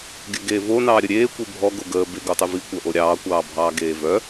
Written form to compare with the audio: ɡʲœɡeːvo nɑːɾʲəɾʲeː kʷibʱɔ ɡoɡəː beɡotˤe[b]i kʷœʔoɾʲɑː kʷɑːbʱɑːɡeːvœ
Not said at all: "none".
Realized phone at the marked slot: v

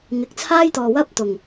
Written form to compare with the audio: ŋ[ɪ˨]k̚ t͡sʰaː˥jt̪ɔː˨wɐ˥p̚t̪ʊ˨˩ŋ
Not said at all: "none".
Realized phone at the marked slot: ɪ˨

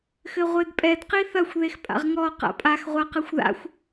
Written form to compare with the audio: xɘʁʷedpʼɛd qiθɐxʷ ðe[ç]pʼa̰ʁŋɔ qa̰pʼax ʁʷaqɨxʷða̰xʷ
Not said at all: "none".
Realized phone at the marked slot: x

